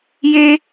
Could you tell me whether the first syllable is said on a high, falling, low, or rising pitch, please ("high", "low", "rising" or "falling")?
high